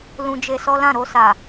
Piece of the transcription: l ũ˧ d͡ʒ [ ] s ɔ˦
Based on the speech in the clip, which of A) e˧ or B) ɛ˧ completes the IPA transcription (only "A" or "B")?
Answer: A